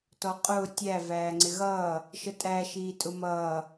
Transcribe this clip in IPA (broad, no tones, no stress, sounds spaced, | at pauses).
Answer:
t ɔ qʼ ʊː tʲ æ v æː ŋ͡ǀ ɪ ɣ ʌː | ʃ ə tʼ æ ʃ iː tʼ ʊ m ʌː